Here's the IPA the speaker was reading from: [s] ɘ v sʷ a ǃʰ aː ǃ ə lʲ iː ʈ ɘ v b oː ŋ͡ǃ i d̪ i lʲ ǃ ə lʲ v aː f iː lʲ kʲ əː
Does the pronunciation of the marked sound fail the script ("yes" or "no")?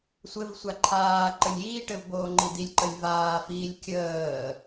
yes